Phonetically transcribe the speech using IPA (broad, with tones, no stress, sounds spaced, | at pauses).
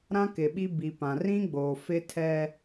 ɾ ã˦ k ɪ˨ ɓ i˦ b i˨ p ã˨ r ĩ˦ ɡ͡b o˨ f ɪ˦ tʰ ɛ˦